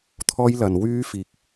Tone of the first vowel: high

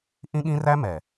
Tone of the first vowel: high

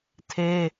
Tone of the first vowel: high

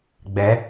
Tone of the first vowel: rising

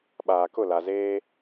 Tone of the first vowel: low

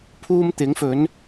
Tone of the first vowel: high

